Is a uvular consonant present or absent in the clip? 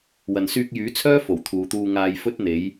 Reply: absent